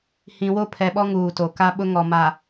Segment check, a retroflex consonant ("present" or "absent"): absent